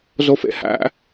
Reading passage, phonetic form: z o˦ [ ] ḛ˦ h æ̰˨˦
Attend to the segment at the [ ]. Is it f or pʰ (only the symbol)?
f